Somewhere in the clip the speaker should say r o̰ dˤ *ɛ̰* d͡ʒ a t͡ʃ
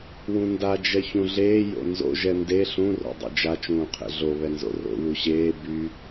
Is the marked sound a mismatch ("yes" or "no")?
yes